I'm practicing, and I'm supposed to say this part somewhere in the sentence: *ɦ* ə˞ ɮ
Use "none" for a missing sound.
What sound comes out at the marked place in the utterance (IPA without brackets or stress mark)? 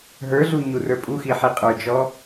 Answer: ɦ